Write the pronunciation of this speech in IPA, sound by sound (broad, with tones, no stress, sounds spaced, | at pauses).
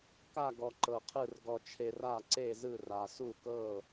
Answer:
k a˥˧ ɡ ɔ˧ ǃ ɤ˧ qʰ ɯ˥˧ r ɡ ɔ˧ t͡ʃʰ e˧ r a˥˧ ǀ e˥˧ z ɯ˥˧ r a˧ s u˥˧ k ɤ˥˧